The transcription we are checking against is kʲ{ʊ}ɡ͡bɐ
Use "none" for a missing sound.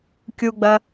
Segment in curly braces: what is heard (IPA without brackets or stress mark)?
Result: u